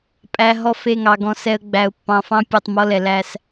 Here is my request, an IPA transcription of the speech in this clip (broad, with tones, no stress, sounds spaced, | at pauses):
pʼ æ˨ ɦ ɔ˦˨ f e˦˨ ŋ ɑ˨ ɡ ɔ̃˨ s ɛ˨ ə̯ ɡ͡b æ˨ ʊ̯ pː ɑ̃˨ f ɑ̃˦ pʲ ɔ˨ tˤ m ɔ˦ l ɛ˨ l æ˦ s